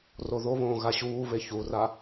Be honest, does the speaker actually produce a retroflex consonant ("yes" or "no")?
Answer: no